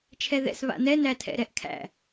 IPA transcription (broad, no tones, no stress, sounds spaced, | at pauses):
t͡ʃʰ ɛ ð ɛ̰ s β a̰ n ɛ n æ tʰ ɛ̰ ɾ ɛ ʔ kʰ æ̰